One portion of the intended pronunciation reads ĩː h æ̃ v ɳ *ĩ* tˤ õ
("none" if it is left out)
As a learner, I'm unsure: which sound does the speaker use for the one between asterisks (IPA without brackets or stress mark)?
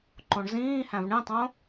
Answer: ĩ